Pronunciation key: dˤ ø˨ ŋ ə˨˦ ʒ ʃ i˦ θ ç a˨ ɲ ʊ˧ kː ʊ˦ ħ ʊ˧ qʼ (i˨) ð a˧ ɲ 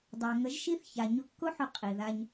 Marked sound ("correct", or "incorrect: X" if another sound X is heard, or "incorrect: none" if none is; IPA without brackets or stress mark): correct